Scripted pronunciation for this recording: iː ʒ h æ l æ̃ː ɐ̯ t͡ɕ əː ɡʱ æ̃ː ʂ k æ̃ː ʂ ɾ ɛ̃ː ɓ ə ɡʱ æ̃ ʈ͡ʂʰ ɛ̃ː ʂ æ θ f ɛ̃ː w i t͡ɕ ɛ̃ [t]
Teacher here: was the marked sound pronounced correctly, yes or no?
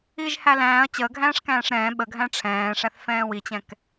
no